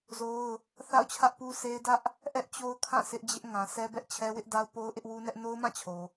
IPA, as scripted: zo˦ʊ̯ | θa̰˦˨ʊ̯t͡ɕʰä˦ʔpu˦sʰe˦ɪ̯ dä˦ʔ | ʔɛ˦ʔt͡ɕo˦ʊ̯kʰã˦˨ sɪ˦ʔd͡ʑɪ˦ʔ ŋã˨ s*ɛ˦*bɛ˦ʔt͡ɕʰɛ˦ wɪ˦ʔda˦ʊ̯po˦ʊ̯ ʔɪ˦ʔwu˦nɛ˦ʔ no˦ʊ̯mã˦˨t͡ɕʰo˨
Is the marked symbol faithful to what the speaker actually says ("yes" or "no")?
yes